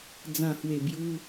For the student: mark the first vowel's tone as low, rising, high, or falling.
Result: low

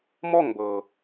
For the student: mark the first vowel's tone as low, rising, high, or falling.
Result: falling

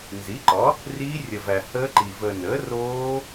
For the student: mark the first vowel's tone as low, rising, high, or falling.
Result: rising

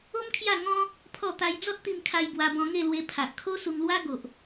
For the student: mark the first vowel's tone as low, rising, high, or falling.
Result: high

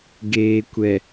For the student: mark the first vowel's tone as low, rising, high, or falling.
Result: low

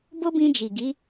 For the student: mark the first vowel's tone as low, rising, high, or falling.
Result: high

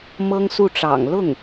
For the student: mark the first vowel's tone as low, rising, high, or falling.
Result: high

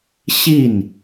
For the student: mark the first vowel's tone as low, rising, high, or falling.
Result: falling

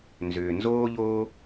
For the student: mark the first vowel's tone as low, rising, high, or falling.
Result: low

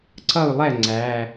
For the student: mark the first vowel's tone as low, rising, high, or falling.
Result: falling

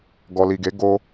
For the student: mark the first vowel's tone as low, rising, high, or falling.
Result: low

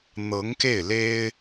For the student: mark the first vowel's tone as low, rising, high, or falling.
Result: rising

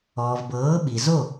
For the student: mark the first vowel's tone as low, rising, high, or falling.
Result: low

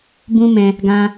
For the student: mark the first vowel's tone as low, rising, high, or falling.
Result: high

